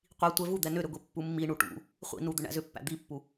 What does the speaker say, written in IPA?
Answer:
qʷi tʷɛvud̪ɛ nʏɾʏɡʷi pːumːi ɳuʈṵ | χʷḭnu d̪ʏɳæ̰zʏpːæ̰ d̪ipːu

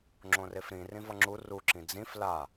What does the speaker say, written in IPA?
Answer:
ŋ͡ǁõrefɾĩ rĩvʌŋ͡ǁu ru ǁĩd͡zĩf la

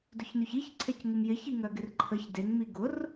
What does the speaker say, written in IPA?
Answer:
dʊçnyçiçǀʰec ŋɪmjɪçiŋœ ɡɪrǃʰəç deŋmi ɡʊr

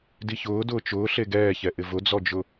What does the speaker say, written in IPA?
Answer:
diçʊː dʊːt͡ʃʊː ɬeɡɛːçɛ ʔɪvʊd͡zɔd͡ʒʊ

